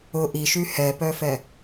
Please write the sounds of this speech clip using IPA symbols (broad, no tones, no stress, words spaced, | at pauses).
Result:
ʊ ʔiʃy hɛpœfɛ